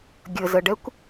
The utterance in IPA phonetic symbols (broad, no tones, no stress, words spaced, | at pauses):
ɡʲəzəɖɛkʷ